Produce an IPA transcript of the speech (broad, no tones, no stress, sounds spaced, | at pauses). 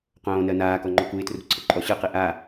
q õː n ɜ n aː k ɔ ŋ͡ǃ ɔ k u ɪ̯ t r ṳ ǀʰ ə ǃʼ ɔ ɕ ɯ q i ʔ a